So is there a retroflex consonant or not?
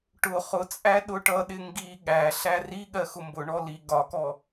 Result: yes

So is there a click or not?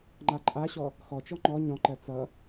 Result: yes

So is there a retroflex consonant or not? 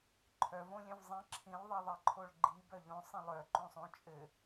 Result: yes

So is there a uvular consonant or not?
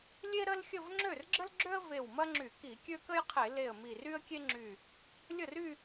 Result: yes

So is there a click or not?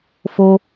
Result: no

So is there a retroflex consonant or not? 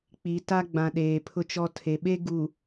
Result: no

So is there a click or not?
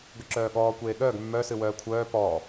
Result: yes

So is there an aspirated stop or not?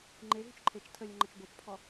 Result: yes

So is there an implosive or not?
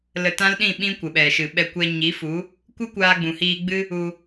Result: yes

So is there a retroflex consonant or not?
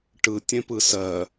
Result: yes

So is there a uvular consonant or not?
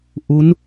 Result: no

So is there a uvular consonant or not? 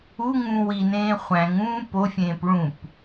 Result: yes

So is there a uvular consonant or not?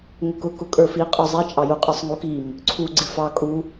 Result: yes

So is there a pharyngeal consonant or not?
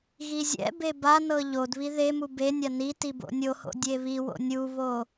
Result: no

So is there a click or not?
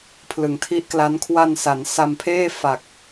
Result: no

